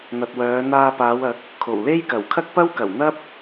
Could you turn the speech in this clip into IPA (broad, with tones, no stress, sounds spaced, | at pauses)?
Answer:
n̪ ɐ˨ t̚ w œː˨˧ n̪ aː˧ p aː˨˧ w ɐ˨˥ k̚ | kʰ o˨˩ w l e˥ j k ɐ˨˩ w kʰ ɐ˥ k̚ p ɐ˥ w k ɐ˨˩ w n̪ ɐ˥ p̚